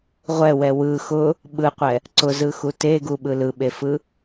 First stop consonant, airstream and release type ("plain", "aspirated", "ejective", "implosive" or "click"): implosive